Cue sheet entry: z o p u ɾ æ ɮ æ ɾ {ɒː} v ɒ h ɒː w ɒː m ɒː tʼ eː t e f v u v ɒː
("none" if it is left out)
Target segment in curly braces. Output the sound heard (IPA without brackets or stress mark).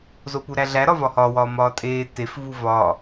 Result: ɒ